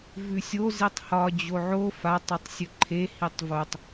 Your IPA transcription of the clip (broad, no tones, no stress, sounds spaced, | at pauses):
v ʉ sʲ o z i tˤ h ɒ d͡ʑ o ʕ o f a tˤ ɵ tˤ sʲ ɵ ǃʰ e h i tˤ v o tˤ